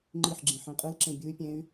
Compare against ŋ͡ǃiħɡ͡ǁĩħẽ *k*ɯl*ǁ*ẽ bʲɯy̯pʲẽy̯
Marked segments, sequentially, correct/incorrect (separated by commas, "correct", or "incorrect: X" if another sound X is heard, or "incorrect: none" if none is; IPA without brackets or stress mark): incorrect: qʼ, correct